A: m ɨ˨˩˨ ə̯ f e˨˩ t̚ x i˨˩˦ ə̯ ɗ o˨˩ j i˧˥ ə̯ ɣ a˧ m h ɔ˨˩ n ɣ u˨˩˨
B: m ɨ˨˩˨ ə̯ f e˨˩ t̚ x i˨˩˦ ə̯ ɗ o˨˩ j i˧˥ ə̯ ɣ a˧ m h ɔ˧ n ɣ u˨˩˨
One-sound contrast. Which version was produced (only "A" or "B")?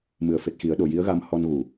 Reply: B